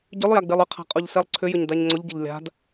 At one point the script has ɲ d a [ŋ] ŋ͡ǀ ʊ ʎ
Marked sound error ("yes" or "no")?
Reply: yes